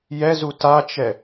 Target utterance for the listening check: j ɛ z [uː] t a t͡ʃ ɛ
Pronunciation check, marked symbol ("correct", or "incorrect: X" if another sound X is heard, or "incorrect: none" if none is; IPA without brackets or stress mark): incorrect: u